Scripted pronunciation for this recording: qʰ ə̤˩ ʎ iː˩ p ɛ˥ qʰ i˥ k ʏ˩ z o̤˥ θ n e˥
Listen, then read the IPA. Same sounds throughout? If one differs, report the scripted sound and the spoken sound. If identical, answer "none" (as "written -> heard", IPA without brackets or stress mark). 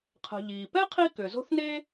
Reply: none